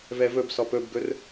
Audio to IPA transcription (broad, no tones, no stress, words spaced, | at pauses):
vɛvɵbsɔp ɵbɡɵr